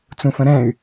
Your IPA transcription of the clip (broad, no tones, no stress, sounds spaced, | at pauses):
t͡s ũ f ə̃ ɾ ɛ̃ y̯